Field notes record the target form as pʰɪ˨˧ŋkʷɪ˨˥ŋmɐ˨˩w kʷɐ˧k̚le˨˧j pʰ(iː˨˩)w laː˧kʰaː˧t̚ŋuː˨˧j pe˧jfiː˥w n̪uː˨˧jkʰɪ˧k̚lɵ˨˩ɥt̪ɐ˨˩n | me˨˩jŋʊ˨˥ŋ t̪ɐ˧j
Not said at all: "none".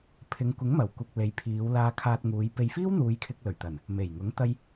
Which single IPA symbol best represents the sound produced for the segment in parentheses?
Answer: iː˨˧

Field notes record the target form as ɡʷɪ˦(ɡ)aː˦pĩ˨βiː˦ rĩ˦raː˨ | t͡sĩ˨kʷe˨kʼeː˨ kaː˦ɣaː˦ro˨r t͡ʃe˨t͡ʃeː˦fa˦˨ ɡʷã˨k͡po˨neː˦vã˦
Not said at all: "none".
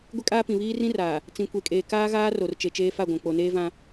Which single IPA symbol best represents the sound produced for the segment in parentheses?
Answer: kʼ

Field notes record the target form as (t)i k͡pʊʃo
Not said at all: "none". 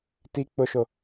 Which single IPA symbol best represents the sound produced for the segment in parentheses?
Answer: t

